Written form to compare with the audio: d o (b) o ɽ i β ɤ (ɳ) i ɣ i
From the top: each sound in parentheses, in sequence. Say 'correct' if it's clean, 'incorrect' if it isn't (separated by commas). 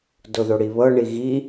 incorrect, correct